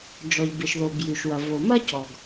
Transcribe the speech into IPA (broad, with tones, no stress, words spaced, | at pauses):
d͡ʒɔ˩ʎbɪ˩ʃðo˩ bjʉ˩ʃwɐ˩ vo˩ mɐ˥cɔ˩ɡ